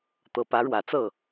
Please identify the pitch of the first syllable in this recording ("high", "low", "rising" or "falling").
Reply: low